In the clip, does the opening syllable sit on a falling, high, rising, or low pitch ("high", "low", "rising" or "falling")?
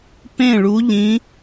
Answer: falling